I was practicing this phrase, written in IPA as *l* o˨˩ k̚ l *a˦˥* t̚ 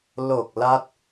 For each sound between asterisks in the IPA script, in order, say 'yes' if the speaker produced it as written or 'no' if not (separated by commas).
yes, yes